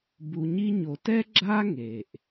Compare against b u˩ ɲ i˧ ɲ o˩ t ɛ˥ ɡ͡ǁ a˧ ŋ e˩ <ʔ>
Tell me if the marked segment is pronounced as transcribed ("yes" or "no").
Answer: yes